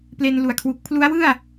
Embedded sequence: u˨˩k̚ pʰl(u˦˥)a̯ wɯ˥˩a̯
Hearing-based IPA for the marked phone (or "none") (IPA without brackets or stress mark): u˦˥